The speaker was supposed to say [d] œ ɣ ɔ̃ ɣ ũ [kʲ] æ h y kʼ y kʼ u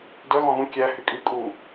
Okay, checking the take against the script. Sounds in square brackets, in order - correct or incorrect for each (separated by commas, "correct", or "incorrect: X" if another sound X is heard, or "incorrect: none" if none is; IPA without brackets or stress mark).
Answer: correct, correct